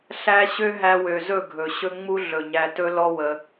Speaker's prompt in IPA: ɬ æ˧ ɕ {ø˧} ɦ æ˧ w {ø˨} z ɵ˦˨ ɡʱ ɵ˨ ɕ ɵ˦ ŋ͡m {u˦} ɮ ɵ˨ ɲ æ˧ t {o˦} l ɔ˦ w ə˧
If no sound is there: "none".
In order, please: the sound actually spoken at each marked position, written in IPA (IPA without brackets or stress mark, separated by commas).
ø˦, ø˨, u˦, ɵ˦